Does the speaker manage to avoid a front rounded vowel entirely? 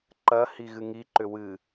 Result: no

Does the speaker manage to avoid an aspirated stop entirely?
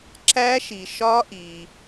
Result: yes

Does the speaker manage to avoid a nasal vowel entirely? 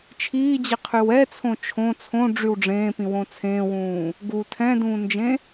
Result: no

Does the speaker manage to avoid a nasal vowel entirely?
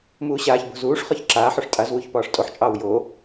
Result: yes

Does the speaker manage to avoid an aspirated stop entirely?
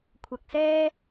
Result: no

